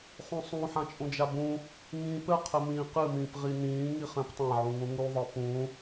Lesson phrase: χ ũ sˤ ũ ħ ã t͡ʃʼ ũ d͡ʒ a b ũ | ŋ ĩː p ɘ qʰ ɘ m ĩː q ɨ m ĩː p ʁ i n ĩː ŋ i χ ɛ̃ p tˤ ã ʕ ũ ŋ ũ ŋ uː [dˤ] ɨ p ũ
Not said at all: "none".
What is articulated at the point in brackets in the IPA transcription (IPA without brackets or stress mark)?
ðˤ